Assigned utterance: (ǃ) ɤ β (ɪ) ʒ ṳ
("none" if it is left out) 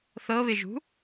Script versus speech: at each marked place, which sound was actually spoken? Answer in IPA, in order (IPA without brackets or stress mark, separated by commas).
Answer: θ, ɪ